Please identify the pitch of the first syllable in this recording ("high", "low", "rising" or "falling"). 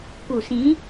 low